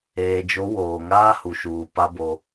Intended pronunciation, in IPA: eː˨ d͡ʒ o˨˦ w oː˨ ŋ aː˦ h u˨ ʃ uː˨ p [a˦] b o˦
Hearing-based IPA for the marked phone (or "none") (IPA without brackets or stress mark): a˦